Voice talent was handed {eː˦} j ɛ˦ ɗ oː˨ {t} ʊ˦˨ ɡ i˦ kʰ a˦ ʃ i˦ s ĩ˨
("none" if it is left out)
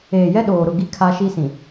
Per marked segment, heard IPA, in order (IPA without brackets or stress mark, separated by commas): eː˨, ɾ